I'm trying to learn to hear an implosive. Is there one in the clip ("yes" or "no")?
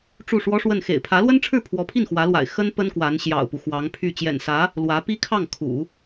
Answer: no